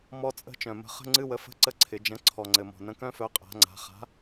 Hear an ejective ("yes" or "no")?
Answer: yes